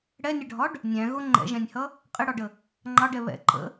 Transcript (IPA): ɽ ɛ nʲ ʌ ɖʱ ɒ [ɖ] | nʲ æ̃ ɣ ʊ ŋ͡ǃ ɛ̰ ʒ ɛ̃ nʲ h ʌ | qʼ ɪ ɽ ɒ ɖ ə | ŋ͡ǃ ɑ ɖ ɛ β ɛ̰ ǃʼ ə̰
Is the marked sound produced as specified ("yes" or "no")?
yes